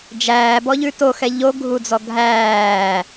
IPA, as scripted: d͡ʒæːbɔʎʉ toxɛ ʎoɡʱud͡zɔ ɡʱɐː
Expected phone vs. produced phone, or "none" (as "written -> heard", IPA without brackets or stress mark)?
ɐː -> æː